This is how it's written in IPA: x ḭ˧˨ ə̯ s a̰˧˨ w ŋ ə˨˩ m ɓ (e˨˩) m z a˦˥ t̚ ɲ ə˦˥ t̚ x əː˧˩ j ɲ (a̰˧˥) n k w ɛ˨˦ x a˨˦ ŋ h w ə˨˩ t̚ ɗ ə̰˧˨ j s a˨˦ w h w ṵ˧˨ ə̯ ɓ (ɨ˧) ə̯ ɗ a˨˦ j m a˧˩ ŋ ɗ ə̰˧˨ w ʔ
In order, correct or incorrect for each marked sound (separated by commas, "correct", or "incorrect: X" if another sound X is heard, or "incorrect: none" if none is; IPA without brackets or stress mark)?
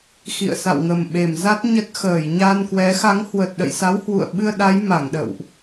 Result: correct, incorrect: a˧, correct